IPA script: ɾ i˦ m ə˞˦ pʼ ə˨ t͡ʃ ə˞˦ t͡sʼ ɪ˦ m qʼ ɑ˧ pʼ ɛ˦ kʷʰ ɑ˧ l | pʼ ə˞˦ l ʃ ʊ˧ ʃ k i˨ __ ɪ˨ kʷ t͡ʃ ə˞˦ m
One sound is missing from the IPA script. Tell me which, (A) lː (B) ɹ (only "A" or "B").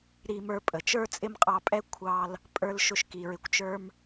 B